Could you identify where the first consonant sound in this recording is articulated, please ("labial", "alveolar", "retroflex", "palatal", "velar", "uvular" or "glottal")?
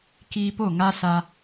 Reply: velar